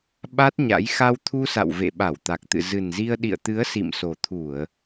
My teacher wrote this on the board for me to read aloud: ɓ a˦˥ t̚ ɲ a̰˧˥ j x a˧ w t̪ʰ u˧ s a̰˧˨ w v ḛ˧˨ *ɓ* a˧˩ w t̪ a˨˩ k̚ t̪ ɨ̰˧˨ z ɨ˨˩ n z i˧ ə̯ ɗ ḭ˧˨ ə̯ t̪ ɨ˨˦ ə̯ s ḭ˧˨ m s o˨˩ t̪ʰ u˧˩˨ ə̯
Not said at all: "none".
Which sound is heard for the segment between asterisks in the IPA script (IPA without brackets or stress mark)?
ɓ